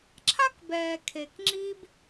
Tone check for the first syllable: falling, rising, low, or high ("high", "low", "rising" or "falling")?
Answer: high